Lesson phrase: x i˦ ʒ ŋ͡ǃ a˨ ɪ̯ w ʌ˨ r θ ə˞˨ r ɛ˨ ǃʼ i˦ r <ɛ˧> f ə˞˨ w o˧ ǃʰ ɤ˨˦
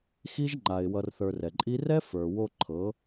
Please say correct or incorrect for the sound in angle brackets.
incorrect